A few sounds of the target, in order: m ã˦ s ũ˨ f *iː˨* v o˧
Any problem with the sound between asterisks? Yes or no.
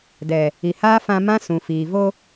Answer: no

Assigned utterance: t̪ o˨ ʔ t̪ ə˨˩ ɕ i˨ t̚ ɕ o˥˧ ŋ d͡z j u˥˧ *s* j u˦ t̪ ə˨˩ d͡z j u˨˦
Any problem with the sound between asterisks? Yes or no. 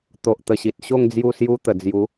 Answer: no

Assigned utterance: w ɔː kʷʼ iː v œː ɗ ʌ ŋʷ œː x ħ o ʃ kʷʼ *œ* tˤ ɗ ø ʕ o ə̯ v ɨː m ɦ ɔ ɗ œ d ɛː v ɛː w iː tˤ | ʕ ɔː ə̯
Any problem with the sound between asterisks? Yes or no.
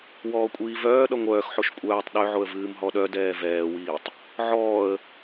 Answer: yes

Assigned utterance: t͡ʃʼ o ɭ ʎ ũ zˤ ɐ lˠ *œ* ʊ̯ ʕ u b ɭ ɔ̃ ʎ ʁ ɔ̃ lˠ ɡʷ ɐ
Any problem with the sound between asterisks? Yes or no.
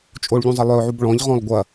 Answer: no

